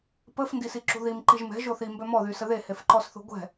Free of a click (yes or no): no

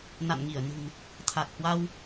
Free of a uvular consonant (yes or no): yes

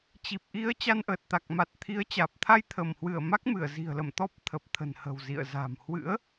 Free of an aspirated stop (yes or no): no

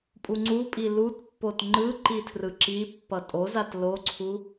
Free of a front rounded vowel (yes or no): yes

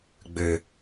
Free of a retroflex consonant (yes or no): yes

